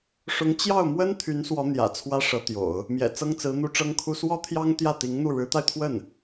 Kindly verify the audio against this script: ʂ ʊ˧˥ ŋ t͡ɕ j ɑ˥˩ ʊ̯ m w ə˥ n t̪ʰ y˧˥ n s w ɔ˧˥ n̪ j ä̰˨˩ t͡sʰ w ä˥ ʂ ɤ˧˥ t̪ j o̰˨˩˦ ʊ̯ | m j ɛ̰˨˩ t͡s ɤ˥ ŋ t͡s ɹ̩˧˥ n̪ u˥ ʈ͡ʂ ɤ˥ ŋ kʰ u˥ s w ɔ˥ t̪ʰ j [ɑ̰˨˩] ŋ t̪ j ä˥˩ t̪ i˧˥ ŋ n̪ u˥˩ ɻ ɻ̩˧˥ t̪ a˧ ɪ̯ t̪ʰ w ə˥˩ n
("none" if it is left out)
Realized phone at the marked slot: ɑ˥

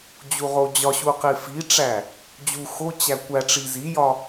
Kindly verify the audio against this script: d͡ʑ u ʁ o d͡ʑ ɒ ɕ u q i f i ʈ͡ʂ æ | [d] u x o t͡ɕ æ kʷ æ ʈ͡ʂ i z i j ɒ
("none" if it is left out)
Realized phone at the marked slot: d͡ʑ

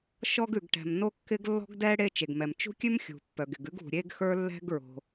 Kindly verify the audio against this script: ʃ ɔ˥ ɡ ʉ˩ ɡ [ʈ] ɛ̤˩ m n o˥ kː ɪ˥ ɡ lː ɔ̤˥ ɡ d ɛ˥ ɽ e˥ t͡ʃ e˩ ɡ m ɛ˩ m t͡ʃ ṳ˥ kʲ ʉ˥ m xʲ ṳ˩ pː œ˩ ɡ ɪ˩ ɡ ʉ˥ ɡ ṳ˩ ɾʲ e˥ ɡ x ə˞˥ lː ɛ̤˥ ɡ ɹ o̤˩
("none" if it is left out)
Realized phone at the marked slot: ʈ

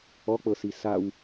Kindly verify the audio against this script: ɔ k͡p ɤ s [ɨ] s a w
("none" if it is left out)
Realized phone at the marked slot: i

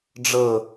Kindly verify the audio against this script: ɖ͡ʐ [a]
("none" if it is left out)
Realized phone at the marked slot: ə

